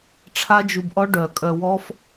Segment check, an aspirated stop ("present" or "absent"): present